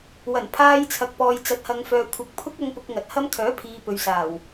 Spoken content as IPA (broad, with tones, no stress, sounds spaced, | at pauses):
w ɐ˨˩ n pʰ aː˧ j t͡sʰ ɐ˨ k̚ p ɔː˨ j t͡s ɐ˨ t̚ h ɐ˨ ŋ f œː˨ kʷʰ ɐ˨ k̚ pʰ ʊ˥ k̚ ɐ˧ ŋ p ʊ˧ k̚ ŋ ɐ˨ t̚ h ɐ˥ m kʰ œː˨˥ pʰ iː˨ p ɵ˨ ɥ s aː˨˩ w